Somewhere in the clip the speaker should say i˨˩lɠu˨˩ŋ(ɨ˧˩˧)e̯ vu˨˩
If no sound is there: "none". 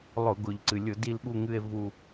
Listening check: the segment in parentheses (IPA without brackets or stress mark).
ɨ˨˩